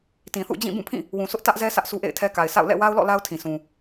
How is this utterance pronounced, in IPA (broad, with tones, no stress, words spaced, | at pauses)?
tĩ˨θṵ˦˨d͡ʑĩ˦˨ bũ˦˨pʰĩ˦˨ | wũ˨sʊ˦ʔ tä˦ʔzɛ˦ sʰä˦ʔsu˦ʔḛ˦˨ɪ̯tʰɛ˦ ka˨ɪ̯sa̰˦˨ʊ̯ lɛ̰˦˨ wa˦ʊ̯lɔ̰˦˨ la˦ʊ̯tʰĩ˨sũ˨